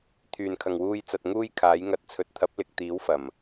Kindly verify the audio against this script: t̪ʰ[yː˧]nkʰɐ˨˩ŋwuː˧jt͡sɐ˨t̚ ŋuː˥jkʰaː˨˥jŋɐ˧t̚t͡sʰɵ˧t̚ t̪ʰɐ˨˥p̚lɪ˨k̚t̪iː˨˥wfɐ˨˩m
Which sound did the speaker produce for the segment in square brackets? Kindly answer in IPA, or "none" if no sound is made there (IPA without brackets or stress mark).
yː˨˩